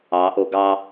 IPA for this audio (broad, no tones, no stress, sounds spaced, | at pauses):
ɑ ʔ o ɡ ɑ